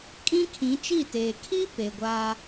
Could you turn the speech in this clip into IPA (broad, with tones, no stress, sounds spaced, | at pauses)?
kʼ ĩ˦ kʰ ĩ˨˦ t͡ʃ i˦˨ t eː˨ kʰ i˦ p e˨ ɡʷ aː˦